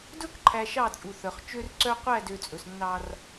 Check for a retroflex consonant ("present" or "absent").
absent